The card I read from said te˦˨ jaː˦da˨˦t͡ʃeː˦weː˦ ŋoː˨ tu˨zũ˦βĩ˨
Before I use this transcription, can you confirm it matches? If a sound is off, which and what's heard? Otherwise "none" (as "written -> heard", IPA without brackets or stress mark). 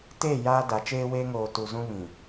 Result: none